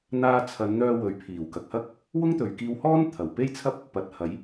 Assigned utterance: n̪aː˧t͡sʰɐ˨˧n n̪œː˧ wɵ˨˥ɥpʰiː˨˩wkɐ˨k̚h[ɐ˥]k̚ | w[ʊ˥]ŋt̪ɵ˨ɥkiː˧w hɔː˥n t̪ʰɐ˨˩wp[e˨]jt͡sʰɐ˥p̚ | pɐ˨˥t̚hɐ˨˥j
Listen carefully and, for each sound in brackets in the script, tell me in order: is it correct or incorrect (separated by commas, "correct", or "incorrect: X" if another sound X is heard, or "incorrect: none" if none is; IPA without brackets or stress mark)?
correct, correct, incorrect: e˥